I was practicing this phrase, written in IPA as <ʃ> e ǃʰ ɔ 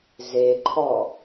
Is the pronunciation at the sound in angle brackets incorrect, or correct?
incorrect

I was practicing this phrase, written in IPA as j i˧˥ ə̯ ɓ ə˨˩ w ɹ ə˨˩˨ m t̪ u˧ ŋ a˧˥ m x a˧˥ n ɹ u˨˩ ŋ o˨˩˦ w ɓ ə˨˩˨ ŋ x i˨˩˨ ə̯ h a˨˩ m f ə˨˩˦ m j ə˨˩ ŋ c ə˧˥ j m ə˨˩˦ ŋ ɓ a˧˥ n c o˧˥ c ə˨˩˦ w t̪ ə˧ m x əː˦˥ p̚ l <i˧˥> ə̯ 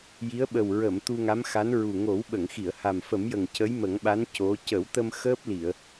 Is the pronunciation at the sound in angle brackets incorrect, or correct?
incorrect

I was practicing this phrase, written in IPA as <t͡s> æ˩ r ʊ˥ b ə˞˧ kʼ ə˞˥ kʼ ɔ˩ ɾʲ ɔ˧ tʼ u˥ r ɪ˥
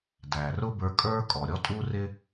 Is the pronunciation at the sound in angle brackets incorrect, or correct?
incorrect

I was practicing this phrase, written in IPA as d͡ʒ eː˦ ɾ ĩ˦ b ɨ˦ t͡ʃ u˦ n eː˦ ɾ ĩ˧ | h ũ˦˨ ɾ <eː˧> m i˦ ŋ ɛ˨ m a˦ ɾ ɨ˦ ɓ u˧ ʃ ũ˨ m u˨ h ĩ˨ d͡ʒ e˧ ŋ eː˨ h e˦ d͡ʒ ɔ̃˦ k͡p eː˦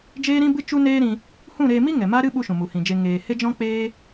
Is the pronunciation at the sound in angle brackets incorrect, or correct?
correct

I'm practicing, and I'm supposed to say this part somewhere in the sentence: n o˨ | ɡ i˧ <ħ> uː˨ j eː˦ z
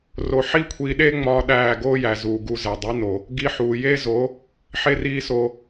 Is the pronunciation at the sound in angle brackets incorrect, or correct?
correct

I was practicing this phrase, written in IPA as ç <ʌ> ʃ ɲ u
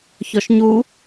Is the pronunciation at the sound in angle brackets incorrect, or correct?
incorrect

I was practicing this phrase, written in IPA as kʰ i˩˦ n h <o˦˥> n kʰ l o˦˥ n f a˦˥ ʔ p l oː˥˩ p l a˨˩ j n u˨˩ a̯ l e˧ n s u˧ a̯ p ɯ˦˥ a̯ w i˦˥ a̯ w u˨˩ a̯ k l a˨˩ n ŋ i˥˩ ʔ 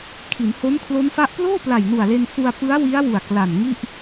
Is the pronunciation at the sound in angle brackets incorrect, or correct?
correct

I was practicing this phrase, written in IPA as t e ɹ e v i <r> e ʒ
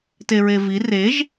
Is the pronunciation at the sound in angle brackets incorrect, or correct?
correct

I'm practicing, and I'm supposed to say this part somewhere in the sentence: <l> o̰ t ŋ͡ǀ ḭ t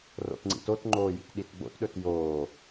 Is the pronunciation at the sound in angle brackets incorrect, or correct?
incorrect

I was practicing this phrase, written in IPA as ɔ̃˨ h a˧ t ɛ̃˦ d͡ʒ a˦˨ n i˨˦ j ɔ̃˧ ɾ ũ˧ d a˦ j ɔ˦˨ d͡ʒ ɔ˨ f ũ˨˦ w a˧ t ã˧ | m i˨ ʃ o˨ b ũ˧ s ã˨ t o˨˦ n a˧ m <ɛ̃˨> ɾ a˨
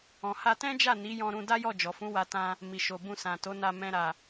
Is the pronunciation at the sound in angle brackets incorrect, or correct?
correct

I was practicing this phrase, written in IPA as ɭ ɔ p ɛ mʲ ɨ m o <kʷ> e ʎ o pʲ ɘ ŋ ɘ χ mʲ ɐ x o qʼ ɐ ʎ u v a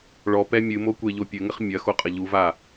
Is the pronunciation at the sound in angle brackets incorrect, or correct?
correct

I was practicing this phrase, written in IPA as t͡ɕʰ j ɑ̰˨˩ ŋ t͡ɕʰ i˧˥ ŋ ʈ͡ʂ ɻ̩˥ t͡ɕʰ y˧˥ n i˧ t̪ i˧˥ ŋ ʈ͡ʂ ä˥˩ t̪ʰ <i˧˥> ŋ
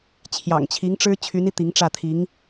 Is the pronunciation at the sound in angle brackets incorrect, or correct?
correct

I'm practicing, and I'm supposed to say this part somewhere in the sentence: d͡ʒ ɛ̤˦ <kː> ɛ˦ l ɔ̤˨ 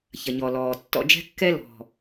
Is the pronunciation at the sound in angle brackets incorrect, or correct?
correct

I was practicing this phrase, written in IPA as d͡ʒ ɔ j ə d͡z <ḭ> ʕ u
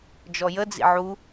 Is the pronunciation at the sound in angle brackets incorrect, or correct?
correct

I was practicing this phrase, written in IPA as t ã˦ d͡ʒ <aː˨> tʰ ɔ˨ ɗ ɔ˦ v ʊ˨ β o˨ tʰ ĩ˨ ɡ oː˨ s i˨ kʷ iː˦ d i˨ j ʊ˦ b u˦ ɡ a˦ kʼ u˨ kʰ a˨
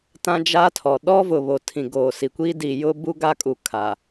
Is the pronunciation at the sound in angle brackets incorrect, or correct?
incorrect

